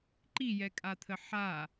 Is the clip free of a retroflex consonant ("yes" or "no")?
yes